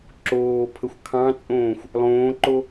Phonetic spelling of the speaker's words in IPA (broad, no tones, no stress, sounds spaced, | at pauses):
ǁ oː pʰ ə xʷ kʰ ɑ̃ t͡sʼ õː xʷ | lˠ õː ǃ o